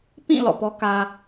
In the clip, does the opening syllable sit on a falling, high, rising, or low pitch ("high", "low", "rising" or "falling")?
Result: falling